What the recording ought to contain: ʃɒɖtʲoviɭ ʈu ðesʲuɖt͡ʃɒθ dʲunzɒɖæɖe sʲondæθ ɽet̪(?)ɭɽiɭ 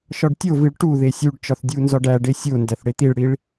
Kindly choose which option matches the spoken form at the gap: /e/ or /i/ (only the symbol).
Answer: i